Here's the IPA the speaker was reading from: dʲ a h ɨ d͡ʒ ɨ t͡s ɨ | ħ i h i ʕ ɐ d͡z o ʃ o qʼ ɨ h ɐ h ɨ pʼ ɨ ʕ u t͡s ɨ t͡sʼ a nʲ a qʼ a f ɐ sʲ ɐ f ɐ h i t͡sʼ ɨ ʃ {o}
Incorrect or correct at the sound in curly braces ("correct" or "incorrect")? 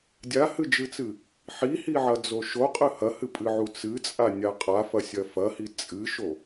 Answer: correct